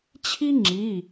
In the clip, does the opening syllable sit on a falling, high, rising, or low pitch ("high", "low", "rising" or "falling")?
high